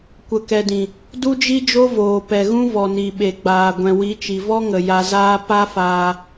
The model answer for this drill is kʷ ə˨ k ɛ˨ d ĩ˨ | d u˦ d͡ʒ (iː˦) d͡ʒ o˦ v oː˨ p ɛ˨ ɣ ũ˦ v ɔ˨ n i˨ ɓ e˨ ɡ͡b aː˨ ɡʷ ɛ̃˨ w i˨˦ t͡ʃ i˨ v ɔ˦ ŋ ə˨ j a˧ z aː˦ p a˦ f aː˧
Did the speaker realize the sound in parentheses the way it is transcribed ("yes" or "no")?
no